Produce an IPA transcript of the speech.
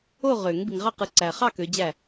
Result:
o˥˨ʁø˨˩˦ŋ bi˨ŋʁɑ˥˨qɯ˨˦ ǀæ˨χɑ˥˨ kø˨˦d͡ʑæ˥˨

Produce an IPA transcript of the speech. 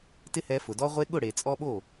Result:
tɪ˦hɛ˧fʊ˨dɔ˦ ʁʷe˧ɠʊ˦˨ɽe˨ t͡sʼɔ˧ɓo˦˨

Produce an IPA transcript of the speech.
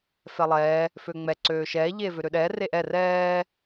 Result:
fɛlˠɛː | føŋ͡mɛ ǀøːʃɛː ʎeːvøɾøɗɛː reʔɛ rɛː

